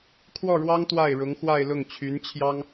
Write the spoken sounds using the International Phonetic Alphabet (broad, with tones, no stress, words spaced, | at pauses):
kʰwɔ˥˩ɻwɑ˥ŋ t̪wa˥˩ɪ̯ɻʊ˧˥ŋxwa˥˧ɪ̯ lʊ˥˩ŋt͡ɕʰy˧˥nt͡ɕʰjɑ˥ŋ